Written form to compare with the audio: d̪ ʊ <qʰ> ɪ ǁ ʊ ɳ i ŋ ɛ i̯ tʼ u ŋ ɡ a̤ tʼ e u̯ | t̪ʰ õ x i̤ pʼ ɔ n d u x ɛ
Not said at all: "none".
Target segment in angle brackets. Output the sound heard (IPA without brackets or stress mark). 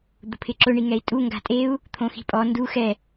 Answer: pʰ